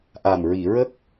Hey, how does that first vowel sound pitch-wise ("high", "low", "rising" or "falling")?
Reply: low